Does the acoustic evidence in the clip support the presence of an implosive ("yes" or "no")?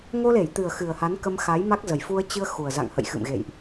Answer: no